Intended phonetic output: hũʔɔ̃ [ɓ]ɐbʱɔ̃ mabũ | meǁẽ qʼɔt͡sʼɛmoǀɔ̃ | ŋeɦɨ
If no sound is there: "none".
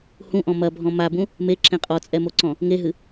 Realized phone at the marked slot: m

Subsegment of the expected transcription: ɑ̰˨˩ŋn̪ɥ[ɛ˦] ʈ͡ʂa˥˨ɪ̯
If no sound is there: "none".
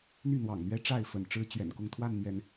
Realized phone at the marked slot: ɛ˦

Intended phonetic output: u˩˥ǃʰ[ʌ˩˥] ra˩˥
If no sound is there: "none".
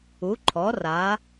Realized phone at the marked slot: ɔ˩˥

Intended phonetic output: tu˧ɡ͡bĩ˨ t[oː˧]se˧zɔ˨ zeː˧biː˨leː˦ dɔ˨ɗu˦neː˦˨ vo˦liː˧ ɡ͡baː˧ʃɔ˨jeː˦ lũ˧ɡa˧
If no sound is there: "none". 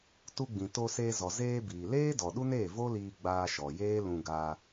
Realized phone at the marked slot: o˧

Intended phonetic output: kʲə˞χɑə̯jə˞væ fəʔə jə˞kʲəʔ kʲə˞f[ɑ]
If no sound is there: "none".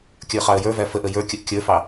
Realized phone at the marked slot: ɑ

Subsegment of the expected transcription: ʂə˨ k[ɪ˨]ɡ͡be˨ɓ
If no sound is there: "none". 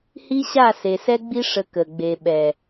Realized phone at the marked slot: ə˨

